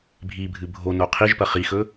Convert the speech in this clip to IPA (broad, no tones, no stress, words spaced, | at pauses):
bʱibʱɨ bʱono qʰiʒpɐ χixɵ